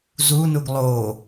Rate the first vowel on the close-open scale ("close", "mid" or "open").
close